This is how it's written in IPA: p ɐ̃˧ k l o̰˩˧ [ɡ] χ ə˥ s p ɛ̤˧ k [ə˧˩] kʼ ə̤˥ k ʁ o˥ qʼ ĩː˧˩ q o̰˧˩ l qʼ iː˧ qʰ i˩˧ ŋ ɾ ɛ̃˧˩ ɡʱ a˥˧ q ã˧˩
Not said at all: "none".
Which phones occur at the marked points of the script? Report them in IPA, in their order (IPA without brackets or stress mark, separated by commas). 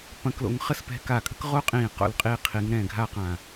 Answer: ŋ, a˧˩